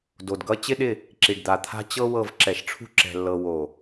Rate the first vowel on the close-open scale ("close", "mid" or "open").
mid